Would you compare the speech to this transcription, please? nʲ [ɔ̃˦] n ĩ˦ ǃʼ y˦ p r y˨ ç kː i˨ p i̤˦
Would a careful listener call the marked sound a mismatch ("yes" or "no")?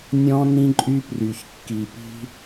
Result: no